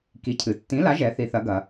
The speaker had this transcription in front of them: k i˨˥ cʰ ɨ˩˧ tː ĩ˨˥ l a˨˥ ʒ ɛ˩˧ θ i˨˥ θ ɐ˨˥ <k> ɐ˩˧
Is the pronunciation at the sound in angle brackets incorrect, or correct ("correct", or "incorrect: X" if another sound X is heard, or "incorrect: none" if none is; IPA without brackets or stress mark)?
incorrect: ɡ